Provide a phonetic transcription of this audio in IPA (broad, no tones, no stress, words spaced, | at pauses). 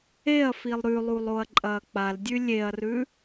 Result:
eɐ̯filˠ ɾʉlˠulˠ oɐ̯ǃʼɐːk͡paldʲʉ lʲeɐ̯rʉ